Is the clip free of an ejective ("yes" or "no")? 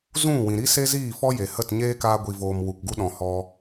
yes